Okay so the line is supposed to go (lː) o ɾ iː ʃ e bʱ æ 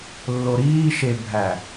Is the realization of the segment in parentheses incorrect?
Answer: no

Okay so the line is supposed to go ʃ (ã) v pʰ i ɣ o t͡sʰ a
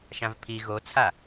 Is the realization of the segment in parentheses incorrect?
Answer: no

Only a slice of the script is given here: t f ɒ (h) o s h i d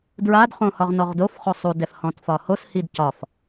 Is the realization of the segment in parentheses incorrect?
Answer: no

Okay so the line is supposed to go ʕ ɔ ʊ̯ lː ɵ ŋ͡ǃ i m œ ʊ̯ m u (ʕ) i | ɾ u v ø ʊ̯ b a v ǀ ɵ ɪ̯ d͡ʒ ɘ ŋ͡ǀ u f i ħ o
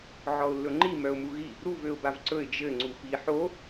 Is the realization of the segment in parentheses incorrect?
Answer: yes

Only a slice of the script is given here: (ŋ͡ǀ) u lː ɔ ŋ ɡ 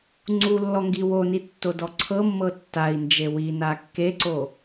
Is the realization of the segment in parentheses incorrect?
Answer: no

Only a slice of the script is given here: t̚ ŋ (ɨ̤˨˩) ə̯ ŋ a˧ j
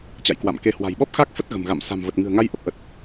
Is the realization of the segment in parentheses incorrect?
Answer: no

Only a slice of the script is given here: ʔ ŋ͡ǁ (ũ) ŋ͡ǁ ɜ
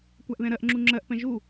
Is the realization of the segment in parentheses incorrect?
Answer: yes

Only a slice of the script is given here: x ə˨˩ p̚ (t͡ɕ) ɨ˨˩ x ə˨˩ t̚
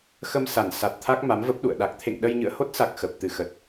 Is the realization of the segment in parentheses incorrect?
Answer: yes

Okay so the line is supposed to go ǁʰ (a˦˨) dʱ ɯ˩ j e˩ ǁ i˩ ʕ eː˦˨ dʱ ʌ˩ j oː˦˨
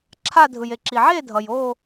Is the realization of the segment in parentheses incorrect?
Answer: no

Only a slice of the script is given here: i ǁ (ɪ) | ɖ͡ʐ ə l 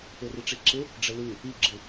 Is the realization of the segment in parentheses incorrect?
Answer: no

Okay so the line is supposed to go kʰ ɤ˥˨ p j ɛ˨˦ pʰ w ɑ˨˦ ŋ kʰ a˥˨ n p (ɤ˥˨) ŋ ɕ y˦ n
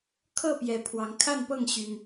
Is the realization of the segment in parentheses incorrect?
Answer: no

